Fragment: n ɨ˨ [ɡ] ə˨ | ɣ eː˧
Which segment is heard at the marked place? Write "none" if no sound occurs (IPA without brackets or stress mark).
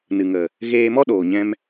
ŋ